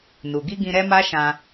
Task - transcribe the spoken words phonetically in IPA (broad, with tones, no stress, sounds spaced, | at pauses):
n u˨ ɡ i˧ ɡ ĩ˧ ɾ ɛ˦ m a˦ ʃ ã˧